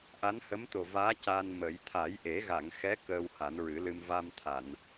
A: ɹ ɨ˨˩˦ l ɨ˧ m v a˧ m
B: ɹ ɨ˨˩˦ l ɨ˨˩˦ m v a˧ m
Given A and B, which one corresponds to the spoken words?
A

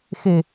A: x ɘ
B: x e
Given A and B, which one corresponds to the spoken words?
B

